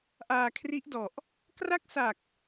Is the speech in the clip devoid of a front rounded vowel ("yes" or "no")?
yes